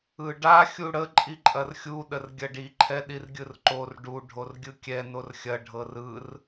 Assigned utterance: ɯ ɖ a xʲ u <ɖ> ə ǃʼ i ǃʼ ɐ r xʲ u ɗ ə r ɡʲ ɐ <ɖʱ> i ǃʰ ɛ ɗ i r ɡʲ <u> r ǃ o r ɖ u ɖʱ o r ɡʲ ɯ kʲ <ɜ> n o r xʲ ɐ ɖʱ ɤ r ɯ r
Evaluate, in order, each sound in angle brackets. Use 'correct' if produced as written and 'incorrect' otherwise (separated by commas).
incorrect, incorrect, incorrect, incorrect